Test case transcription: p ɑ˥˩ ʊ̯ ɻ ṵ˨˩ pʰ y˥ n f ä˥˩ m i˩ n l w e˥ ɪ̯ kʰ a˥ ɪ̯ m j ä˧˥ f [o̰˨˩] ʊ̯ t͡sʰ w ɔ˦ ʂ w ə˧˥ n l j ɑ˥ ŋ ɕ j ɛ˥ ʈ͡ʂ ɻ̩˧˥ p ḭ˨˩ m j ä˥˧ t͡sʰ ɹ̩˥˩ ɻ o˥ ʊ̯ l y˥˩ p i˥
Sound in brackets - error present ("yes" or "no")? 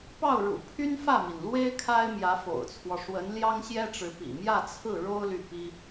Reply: no